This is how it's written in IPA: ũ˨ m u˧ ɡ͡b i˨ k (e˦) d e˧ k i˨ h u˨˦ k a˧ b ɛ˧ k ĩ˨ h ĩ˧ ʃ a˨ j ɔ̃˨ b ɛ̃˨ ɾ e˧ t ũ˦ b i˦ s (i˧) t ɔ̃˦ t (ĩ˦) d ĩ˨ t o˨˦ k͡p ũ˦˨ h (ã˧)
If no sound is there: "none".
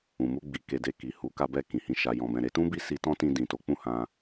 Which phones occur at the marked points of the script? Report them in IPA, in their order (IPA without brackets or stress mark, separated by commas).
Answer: e˧, i˧, ĩ˧, ã˧